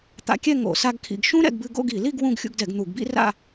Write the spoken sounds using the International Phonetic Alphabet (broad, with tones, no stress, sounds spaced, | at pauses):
t̪ a̰˧ kʲ ɛ˥˧ ŋ o̰˧˩˧ s a˧ ɡ kʰ ḭ˧˩˧ ɡ ʃ ũ˥ ɾ ɛ̰˧ ɡ b ɨ˧ ɡ o̰˥˧ ɡ i˧˩˧ l i˥˧ ɡ w ũ˥˧ ɡ xʲ ṵ˧ ɡ d ɛ˧˩˧ ɡ n̪ u˧˩˧ ɡ b ḭ˥ r a̰˥˧